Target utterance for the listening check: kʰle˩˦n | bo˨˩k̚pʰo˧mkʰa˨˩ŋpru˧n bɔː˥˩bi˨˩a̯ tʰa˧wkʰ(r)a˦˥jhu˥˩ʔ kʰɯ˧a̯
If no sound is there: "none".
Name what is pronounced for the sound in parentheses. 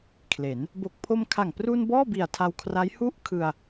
r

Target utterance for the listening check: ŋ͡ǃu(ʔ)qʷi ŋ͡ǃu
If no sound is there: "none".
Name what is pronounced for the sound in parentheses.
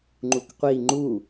k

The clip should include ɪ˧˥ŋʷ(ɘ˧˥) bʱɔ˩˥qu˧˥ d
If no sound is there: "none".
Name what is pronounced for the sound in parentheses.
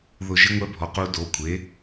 ɛ˧˥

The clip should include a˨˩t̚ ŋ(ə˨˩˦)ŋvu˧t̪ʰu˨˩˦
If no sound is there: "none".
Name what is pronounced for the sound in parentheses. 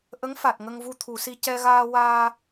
ə˧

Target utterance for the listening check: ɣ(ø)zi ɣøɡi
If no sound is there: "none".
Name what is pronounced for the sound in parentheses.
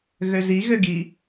ø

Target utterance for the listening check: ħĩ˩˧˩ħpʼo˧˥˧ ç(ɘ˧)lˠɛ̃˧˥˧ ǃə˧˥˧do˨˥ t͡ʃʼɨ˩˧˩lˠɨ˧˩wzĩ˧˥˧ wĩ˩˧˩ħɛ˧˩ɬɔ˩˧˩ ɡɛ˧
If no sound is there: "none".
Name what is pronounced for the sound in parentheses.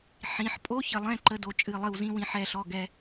ɘ˧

